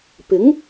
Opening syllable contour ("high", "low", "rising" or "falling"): rising